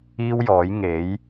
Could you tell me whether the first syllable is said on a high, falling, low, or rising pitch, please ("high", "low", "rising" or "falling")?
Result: high